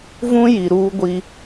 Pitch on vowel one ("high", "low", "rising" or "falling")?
high